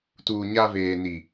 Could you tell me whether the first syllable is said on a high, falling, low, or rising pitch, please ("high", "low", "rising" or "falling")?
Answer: low